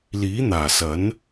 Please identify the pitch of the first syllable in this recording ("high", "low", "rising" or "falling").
rising